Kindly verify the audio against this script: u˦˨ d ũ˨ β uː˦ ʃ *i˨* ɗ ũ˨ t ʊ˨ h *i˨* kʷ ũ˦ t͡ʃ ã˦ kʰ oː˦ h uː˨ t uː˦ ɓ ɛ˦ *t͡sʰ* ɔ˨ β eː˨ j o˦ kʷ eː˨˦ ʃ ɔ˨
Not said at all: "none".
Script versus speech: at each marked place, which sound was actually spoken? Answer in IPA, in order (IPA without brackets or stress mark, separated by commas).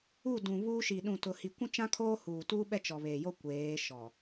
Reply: i˨, i˨, t͡ʃ